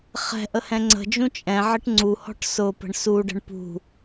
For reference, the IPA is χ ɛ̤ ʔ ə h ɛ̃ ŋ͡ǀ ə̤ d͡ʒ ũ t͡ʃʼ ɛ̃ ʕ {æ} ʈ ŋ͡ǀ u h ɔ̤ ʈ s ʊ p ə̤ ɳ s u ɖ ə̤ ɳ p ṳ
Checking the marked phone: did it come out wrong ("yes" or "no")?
yes